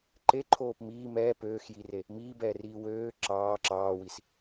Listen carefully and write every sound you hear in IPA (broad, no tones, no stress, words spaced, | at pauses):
ǃeǃʰoːp miː mɛː pøːxjire | miːbɛːriː wøː ǁɑː ǁɑːwis